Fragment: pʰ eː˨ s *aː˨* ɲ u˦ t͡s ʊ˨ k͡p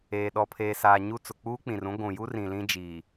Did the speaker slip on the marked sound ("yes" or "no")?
no